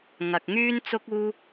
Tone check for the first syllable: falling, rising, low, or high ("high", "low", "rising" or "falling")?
low